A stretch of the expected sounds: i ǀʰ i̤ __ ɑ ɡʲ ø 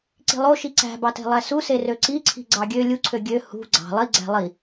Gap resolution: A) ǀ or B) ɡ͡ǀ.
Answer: B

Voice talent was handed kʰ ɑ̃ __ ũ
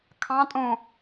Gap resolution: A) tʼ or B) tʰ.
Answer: A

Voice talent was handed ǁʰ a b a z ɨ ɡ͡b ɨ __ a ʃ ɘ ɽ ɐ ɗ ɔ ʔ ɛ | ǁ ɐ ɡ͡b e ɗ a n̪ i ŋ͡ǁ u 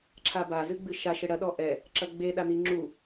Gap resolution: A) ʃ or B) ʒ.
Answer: A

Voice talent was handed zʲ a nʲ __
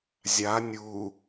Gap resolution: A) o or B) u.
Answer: B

